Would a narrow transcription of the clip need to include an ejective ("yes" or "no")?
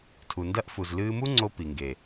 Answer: no